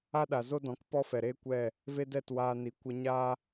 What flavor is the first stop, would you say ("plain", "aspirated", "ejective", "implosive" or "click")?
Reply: implosive